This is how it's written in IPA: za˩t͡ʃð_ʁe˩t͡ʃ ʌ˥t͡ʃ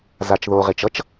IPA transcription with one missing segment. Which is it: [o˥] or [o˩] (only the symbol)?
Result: o˩